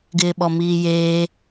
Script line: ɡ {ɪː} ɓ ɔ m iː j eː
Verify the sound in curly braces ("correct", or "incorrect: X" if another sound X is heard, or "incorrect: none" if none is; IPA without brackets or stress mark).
correct